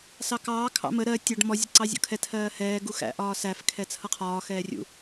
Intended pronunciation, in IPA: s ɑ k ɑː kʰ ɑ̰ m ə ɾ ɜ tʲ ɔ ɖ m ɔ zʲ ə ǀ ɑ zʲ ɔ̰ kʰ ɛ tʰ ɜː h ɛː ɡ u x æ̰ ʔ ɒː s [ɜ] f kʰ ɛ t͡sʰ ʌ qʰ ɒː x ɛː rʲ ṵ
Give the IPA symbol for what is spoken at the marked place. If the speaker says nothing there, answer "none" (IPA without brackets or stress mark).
æ